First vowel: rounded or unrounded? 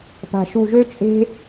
unrounded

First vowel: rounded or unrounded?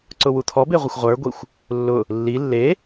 rounded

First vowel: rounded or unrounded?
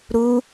rounded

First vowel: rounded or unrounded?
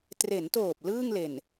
unrounded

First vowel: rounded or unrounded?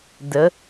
unrounded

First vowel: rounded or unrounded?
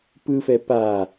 unrounded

